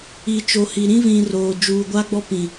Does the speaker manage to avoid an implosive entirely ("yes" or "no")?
yes